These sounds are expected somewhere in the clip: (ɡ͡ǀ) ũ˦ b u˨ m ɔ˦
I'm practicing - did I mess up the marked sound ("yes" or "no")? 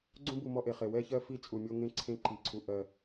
no